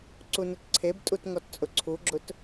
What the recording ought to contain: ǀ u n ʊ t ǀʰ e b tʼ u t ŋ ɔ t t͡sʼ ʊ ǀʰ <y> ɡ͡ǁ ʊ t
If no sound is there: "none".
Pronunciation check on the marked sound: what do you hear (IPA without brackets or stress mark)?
u